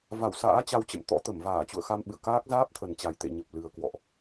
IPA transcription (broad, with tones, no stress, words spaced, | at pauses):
va˧˩wsa̰ː˧˥ t͡ɕa˧wt͡ɕə̰˧˨mt̪ɔ̰˧˥ t̪ə˧˩mvaː˧˩ t͡ɕṵ˧˨ə̯xa˧mɓɨ̰˧˨ə̯ kaː˦˥k̚ zaː˦˥p̚t̪ʰə˨˩n t͡ɕa˨˩jt̪ḛ˧˨ɲə˨˩p̚lɨ˨˩ə̯ kwɔ̰˧˨ʔ